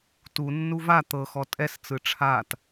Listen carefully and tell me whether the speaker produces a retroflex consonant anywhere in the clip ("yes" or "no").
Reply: yes